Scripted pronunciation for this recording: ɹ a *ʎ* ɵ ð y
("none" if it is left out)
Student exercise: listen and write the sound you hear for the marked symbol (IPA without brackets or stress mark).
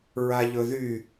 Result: ʎ